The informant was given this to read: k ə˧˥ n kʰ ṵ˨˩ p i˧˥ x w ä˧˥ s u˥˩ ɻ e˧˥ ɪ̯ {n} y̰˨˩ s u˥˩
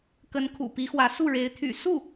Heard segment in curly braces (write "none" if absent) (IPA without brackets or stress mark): t̪ʰ